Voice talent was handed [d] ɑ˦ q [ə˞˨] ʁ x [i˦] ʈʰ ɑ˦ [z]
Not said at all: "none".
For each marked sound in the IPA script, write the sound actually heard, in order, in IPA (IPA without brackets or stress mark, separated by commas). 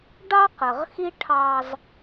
ɖ, ə˨, i˦, z